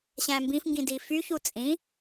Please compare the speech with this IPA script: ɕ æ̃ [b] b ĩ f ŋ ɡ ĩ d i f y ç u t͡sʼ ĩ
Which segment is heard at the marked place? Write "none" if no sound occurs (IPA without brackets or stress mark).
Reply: m